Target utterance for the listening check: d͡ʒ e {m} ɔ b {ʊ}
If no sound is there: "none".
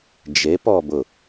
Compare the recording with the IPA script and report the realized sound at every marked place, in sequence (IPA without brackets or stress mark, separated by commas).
p, ʊ